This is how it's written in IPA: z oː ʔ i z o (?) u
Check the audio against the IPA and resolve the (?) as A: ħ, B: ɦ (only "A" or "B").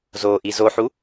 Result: A